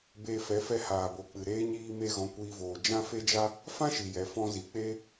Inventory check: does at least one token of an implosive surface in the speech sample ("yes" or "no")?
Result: no